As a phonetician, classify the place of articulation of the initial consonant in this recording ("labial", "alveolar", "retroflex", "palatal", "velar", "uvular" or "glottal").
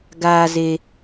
velar